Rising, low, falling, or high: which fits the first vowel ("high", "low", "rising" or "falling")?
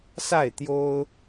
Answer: falling